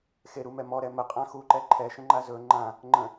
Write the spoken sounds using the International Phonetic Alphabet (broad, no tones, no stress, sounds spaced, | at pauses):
x e ɾ u m ɛ m ɔ ɾ ɛ m ə qʼ ã x u ǃ ɛ ǃʰ ɛ ʃ ə̃ ŋ͡ǃ a z ɵ ŋ͡ǃ ã | ŋ͡ǃ ə̃